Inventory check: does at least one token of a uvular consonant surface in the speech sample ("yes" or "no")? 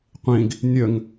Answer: yes